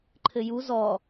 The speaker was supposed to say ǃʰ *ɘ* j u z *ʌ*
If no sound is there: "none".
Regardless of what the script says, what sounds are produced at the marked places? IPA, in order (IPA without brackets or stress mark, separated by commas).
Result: ɘ, ɔ